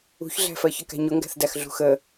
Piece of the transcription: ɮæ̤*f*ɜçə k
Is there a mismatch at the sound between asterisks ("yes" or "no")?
no